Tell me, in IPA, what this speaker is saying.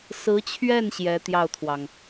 sɹ̩˧˥t͡ɕʰɥɛ˥˩n ɕjɛ˧˥ t̪jɑ˥˩ʊ̯t̪ʰwɑ˩ŋ

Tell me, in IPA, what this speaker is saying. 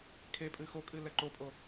kʰepʼɨ xokʼɨ lɛǃopʼo

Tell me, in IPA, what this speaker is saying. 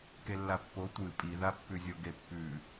kelːapːo tʷɨ pʼiðapːʉzʲo ɡepːʉ

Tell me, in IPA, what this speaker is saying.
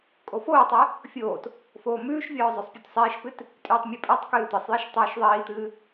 kʼofoːtˤɛ | fʲoːt | foːmʉːʃvʲɔː zˤosˤpʲutsˤiːʃpɨt | tʼʉːtˤmʲʉpʼɛtˤkɨː t̪ɨsˤjiʃ tˤʉːʃðˤiːt̪ɨː

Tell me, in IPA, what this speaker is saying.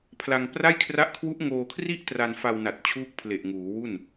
pʰla˧ŋpra˥˩j kʰra˦˥ʔkʰwu˦˥ʔŋoː˧kʰri˥˩ʔ tra˧nfa˧wna˨˩t̚ t͡ɕʰuː˥˩k̚pʰle˨˩ʔŋuː˩˦wu˥˩n

